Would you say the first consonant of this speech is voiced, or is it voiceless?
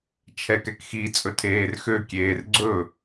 voiceless